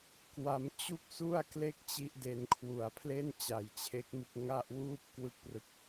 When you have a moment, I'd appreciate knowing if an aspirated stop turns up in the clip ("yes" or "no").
yes